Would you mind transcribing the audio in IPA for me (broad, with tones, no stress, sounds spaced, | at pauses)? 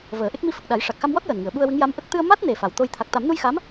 v əː˨˩˦ ʔ e˦˥ k̚ m i˧ f ə˨˩ k̚ ɗ a˨˩˦ j ʂ a˨˩ k̚ x a˧ m w ɔ˦˥ t̚ j əː˨˩ n ŋ ɨ˨˩˨ ə̯ ɓ u˧ ə̯ w ɨ˧˥ ŋ j a˧˥ m ʔ ə˦˥ k̚ t̪ ɨ˧ ə̯ m a˦˥ t̚ n e˨˩ f a˨˩ w t̪ o˧ j t̪ʰ a˨˩ k̚ t̪ a˨˩˦ m n u˧ j x a˧˥ m